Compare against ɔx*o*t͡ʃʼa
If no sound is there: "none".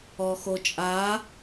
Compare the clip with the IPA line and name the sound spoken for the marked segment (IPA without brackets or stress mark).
o